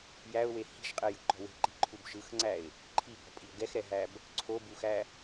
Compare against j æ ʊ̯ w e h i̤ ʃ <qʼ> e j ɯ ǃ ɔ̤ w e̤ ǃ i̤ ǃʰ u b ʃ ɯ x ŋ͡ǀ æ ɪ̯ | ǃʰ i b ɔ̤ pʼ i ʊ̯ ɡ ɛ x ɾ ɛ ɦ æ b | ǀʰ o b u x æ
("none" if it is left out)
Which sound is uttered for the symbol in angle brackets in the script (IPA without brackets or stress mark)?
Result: qʼ